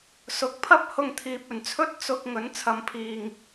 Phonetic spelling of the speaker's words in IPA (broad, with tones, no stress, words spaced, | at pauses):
sʊ˨˥k̚pʰɐ˥p̚ hʊ˧ŋt̪ʰiː˨p̚ɵ˨˩nt͡sʰɵ˥t̚ t͡sʊ˧k̚ ŋɵ˨˥nt͡sʰɐ˨m pʰiː˨˩ŋ